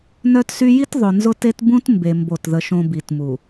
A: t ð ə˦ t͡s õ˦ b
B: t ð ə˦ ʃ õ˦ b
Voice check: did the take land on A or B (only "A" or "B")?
B